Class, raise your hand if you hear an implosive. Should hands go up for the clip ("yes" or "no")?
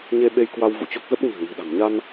yes